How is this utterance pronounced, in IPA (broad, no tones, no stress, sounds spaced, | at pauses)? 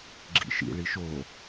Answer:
ɡ͡ǁ ḭ ʃ ḭ ɭ i ʃ o